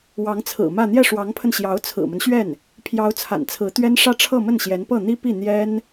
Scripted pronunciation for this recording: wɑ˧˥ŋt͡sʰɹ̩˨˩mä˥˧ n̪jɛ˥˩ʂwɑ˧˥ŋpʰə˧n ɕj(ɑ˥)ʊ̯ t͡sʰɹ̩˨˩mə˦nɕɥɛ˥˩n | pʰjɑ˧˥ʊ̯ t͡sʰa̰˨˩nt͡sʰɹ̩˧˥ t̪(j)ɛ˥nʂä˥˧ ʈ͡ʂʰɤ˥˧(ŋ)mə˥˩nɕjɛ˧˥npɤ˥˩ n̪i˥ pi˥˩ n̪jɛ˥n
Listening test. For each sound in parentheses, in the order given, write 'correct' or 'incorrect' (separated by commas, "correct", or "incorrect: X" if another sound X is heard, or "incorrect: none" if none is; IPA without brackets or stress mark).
incorrect: ɑ˧˥, incorrect: ɥ, incorrect: none